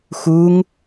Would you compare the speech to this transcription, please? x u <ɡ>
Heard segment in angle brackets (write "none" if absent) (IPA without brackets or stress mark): ŋ